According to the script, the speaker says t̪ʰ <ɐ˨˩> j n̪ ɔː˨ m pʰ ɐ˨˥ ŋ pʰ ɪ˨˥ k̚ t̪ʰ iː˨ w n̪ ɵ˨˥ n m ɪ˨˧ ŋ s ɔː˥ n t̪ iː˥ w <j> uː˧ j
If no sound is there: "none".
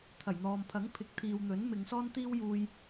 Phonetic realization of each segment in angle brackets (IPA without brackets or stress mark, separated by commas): ɐ˨˩, j